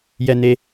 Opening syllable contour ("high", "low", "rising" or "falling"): high